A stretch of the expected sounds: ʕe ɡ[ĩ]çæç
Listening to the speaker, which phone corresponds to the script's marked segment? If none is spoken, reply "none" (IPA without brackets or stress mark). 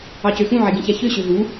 ĩ